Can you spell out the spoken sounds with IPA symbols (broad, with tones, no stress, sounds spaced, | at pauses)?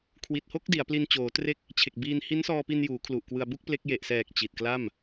kʰ w i˨˩ t̚ h o˥˩ k̚ d i˩˦ a̯ p l i˧ n t͡ɕ oː˩˦ t r e˦˥ k̚ | t͡ɕʰ e˨˩ k̚ b iː˧ n h i˦˥ n s ɔː˧ p i˧ n j uː˩˦ kʰ l u˨˩ ʔ k w ɯ˧ a̯ b u˥˩ k̚ p l e˦˥ k̚ j e˨˩ ʔ s ɛː˨˩ k̚ t͡ɕ i˨˩ t̚ k l a˥˩ m